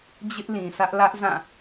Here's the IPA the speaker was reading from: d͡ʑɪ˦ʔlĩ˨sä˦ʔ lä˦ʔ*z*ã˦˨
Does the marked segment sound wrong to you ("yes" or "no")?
no